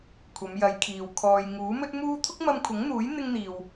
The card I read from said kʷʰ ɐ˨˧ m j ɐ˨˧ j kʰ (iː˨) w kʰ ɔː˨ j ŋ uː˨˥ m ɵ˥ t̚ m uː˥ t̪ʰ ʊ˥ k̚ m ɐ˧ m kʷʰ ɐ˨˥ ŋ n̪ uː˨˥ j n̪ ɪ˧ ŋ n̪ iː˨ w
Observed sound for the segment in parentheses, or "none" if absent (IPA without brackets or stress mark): iː˨